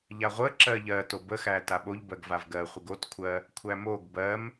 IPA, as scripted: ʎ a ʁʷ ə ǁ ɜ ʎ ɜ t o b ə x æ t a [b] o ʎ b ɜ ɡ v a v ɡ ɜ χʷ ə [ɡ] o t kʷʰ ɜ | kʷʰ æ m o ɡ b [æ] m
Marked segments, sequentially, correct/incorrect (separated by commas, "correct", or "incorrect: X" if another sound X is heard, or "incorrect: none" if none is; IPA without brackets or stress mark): incorrect: ɓ, correct, incorrect: ɜ